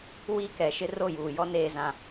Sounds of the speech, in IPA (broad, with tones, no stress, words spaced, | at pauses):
wiː˦kɛ˨˦ʃɪ˦ ro˦˨juː˨jɔ˦ neː˦zã˦